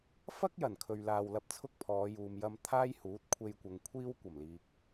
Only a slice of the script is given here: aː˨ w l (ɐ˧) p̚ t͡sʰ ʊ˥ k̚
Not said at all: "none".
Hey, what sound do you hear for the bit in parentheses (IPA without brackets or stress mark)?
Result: ɐ˧